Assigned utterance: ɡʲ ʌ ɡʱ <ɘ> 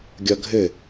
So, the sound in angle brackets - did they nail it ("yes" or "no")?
yes